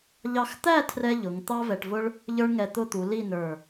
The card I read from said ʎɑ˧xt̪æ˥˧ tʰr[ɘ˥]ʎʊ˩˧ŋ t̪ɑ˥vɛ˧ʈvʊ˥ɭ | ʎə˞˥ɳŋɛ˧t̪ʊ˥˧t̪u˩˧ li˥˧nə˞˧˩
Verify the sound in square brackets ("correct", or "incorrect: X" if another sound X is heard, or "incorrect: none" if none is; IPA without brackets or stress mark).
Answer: incorrect: ɛ˥